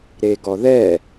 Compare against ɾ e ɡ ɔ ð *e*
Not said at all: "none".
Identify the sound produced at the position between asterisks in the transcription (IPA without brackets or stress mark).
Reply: ɛ